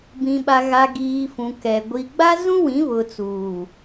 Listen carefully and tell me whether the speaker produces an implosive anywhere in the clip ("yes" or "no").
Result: yes